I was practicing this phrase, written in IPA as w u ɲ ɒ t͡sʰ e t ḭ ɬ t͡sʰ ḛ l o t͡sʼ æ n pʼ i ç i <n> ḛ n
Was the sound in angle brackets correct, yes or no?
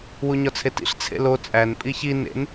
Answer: yes